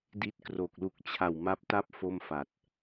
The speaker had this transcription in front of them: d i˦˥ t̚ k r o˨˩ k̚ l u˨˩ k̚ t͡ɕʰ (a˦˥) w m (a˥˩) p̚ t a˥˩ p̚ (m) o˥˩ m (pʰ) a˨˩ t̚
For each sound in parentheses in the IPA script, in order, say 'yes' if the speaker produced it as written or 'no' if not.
no, no, no, no

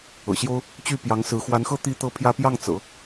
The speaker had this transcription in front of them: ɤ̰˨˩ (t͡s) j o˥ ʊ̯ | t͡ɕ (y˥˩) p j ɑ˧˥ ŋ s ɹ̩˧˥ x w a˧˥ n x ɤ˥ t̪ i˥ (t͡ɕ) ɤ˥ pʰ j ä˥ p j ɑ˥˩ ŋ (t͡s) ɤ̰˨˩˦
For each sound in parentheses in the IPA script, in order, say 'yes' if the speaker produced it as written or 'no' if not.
no, yes, no, yes

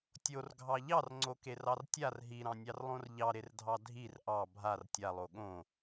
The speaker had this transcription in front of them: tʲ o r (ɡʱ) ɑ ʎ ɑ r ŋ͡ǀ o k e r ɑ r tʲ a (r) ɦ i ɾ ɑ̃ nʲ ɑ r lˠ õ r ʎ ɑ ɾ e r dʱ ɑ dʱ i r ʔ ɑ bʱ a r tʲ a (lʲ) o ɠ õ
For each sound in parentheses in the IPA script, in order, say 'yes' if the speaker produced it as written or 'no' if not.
yes, yes, no

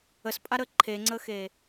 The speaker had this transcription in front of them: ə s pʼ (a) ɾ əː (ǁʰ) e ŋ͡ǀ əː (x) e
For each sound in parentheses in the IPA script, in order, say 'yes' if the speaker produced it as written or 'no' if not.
yes, no, yes

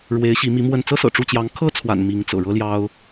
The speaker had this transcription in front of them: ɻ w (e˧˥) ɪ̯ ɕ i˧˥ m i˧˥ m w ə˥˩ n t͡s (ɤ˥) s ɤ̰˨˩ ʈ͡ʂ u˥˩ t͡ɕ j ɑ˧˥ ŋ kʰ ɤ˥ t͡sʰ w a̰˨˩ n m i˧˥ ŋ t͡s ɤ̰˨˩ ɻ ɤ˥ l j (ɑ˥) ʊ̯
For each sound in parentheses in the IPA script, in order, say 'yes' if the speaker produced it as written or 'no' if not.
yes, yes, yes

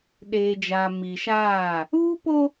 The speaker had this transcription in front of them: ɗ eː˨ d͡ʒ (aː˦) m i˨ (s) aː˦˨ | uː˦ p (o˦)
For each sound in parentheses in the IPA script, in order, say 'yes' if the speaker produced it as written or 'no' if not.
no, no, yes

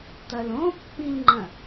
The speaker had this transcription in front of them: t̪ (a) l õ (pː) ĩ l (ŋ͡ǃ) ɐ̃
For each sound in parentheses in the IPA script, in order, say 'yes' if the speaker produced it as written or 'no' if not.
no, yes, yes

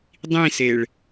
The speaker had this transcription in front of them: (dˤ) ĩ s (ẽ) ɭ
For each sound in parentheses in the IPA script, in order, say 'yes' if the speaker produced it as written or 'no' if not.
yes, no

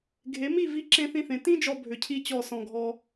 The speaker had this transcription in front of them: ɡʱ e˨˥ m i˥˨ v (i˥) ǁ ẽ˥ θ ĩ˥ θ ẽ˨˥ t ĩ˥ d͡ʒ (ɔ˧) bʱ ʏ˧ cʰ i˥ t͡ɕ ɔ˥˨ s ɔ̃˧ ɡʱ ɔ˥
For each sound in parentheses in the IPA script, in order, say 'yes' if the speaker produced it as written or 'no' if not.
yes, yes

